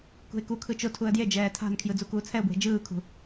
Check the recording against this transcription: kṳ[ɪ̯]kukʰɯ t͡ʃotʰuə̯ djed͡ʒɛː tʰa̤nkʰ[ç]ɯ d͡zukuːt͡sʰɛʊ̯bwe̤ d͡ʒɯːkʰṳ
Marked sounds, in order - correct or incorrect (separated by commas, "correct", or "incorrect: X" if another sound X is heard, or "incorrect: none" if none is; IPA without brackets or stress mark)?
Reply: correct, incorrect: j